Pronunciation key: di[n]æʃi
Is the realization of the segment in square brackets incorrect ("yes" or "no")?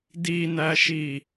no